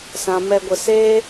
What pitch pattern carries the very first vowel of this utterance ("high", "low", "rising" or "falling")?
low